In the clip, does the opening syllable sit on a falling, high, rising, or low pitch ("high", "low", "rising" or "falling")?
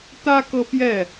high